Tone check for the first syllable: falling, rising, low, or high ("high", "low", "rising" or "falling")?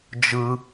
high